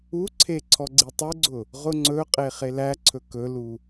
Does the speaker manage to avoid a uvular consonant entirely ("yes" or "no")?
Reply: no